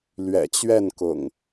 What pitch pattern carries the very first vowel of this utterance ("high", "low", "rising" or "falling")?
low